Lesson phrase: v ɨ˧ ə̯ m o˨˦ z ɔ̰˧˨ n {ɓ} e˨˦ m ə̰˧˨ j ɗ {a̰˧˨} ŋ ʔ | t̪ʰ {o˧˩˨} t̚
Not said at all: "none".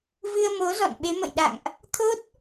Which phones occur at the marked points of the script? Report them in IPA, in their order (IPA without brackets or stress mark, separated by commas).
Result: ɓ, a̰˧˨, o˦˥